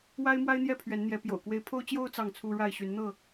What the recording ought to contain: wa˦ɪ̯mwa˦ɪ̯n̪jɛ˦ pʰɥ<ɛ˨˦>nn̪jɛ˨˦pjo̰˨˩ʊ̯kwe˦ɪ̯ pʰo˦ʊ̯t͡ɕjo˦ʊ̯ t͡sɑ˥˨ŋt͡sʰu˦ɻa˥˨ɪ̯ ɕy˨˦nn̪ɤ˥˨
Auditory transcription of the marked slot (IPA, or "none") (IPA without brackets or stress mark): ɛ˨˦